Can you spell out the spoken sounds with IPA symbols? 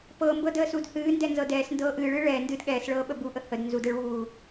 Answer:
p ɤ m b ɤ d əː s u d h ɨː n d ɛ n z ɤ d ɛː s n d ɤː ʔ ɨː ɭ ɨː ɭ ɛː n d ɨ d ɠ ɛː s ɭ ɤː ɓ ə b u ʔ ə h ə d n z u d ɛ ɭ w uː

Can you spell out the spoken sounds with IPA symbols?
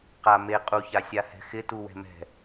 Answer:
q a m e qʼ u ç a sʲ a h ɛ̤ x ɪ t u w ɛ̤ m ɛ̤

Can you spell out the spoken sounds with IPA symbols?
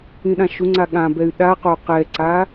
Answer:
ĩ ɗ ã ʃ u ŋ͡ǀ a ɠ ã b ɛ y̯ ɗ a q o q ɛ ǀ a

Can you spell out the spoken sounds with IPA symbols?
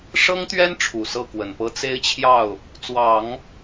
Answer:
ʂ ɤ˥ ŋ t̪ ɥ ɛ˥ n ʈ͡ʂʰ u˨˩ s ɤ˥˩ k w ə˨˩ n p ɤ˥ t͡s e˥ ɪ̯ t͡ɕʰ j ɑ˥˩ ʊ̯ | t͡s w ɑ˨˩˦ ŋ

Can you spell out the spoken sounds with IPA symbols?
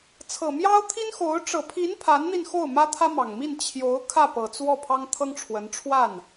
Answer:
t͡sʰ ɤ˨˩ m j ɑ˥ ʊ̯ t̪ʰ i˥ n x o˧˥ ʊ̯ ʈ͡ʂ ɤ˨˩ pʰ i˧˥ n pʰ a˧˥ n n̪ i˧ n x o˥˩ ʊ̯ m ä˥ t̪ʰ ä˥ m ɑ˨˩ ŋ m i˥˩ n t͡ɕʰ j o˧˥ ʊ̯ kʰ ä˥˩ p ɤ˨˩ t͡s w ɔ˥˩ pʰ ɑ˥ ŋ t̪ʰ ɤ˥ ŋ ʈ͡ʂʰ w ə˧˥ n ʈ͡ʂʰ w a˥˩ n

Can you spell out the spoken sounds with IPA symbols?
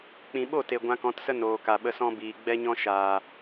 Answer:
k͡p ĩ˨ ɓ o˦˨ t e˨ ɡʷ ã˧ k ɔ̃˨˦ t s ə˦ n oː˨ k a˨ ɓ ə˧ s ɔ̃˦ b iː˨ ɡ͡b ɛ˦ ɲ ɔ̃˦ ʃ aː˨

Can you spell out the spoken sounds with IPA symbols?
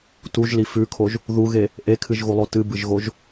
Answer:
t u ʒ l i f ʉ kʰ o ʒ | ð u ɣ e | ʔ e kʰ ɨ ʒ ɣ u lˠ o t ɨ b ɨ ʒ ɣ o ʒ

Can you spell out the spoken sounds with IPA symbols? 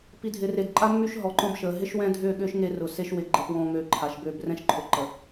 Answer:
p i˨ dʱ ɪ˨ r e˨ d ǃʼ a˦ mː y˦ ʃ ɦ ɔ˨ ǃ ɔ̃˦ b ʃ əː˨ ɦ ɪ˦ ʃ w ɛ̃˦ dʱ ʏː˦˨ ɠ ʏː˦ ʃ ŋ e˦ r ʊ˨ s e˦ ʃ w ɪ˨˦ ɡ͡ǃ ɪ˦˨ p w ɔ̃ː˦ ŋ ø˦˨ ǃʰ a˨ ʃ b ø˦ b r ɛ̃˦ ʃ ǃʰ ʊ˨ ǃ ə˨

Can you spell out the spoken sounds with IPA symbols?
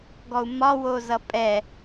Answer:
ɡ ɔ u̯ m ɒ w o z ʌ pʼ ɛ

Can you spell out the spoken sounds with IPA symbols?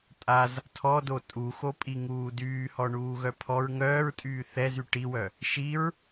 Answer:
tʼ a z | tʰ ɔ d o tʼ u x o pʼ i ŋ uː d yː h ɔ ɳ uː ɣ œ pʰ ɔ ɹ ŋ œː ɹ tʼ yː θ ɛ z y ʈ i w œ | ʃ i ɹ

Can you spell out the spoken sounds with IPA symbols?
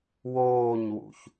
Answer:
w oː ɲ w ṵ ç

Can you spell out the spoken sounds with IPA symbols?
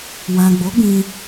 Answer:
w ã˨ ɡ͡b o˨˦ ɡ͡b ĩ˧

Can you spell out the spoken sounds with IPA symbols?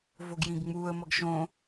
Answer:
v o ɡ j ĩ ɡ ŋ͡m uː ə̯ m ʌ ɡ ʃ õ

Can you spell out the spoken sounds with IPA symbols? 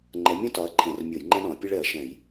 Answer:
ŋ͡ǃ ɛ˨˦ mʲ ɔ̃˥ t ɒ˨˦ ɐ̯ ǃʰ ẽ˧˩˧ r mʲ ɒ˧˩˧ j ŋ͡ǃ ɛ̃˥ ɳ ɔ̃˧˩˧ ɐ̯ pʲ e˥ ɭ ɛ˧˩˧ ɐ̯ ʃ ɛ̃˧˩˧ j

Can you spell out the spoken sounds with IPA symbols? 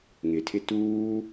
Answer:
ŋ ɪ tʰ ɪ t uː

